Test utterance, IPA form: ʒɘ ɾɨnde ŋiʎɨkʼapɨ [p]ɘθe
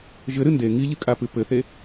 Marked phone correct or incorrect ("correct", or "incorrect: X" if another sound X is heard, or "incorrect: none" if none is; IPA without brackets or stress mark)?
correct